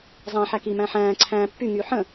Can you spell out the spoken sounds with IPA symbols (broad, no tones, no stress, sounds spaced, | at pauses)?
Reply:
zˤ æ̃ ħ æ k i m æ̃ ħ æ̃ː ǀʰ æ̃ː pː y ŋ yː ħ ə̃